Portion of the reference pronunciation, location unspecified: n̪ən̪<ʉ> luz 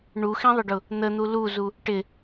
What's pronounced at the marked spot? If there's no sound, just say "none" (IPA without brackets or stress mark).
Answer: u